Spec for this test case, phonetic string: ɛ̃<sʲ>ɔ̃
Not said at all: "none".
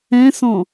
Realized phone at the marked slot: s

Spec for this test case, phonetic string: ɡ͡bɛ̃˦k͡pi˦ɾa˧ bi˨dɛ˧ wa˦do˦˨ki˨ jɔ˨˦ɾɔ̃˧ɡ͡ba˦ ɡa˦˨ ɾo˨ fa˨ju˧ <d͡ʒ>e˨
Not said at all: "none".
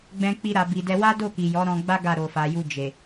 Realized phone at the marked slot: d͡ʒ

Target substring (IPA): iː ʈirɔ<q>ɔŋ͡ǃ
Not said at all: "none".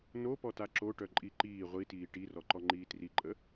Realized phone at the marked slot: ǃ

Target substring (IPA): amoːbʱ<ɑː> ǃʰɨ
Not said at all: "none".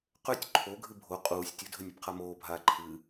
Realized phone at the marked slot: aː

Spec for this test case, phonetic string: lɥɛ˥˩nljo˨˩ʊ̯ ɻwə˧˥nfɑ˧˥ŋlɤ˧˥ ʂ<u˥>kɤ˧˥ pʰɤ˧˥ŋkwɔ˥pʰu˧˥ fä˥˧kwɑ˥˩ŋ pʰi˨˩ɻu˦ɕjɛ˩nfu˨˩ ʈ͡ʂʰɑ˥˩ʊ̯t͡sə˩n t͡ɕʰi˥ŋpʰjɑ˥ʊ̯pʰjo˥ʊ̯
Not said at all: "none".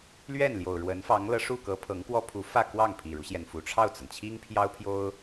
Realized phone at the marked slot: u˥˩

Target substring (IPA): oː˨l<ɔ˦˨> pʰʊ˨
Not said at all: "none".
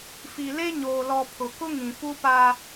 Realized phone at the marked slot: ɔ˨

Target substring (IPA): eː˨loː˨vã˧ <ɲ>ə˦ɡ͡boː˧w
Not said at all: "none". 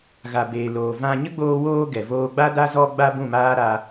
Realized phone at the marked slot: ɲ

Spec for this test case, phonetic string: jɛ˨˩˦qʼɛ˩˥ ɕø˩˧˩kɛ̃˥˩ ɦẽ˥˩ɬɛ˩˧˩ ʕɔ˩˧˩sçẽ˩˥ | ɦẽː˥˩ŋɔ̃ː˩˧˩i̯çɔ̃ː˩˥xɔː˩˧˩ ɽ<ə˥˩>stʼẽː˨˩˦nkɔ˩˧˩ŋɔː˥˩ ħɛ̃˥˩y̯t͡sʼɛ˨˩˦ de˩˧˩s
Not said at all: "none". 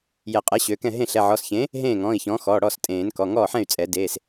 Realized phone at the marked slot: ɔ˥˩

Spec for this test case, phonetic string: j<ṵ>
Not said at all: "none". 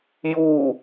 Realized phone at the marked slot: u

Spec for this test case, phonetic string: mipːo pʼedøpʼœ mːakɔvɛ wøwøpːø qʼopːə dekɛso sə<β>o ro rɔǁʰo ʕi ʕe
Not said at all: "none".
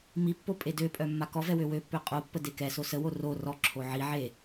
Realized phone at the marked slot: w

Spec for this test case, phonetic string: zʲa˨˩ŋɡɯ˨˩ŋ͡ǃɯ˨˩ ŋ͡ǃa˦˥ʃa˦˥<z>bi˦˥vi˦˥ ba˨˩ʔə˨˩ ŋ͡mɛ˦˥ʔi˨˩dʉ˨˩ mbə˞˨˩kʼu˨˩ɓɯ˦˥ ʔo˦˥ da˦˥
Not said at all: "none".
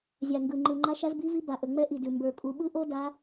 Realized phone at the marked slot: z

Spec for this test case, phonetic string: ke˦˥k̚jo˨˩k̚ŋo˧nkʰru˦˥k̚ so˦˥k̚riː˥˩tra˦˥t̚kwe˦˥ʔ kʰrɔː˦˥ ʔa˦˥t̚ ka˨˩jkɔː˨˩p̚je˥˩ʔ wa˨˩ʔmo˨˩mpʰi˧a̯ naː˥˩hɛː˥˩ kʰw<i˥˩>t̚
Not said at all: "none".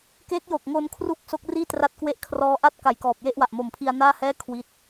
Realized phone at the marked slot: i˦˥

